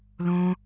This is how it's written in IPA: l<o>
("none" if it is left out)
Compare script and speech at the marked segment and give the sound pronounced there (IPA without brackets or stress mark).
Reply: õ